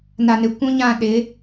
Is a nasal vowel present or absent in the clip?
present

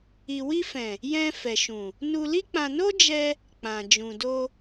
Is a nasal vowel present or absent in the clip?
present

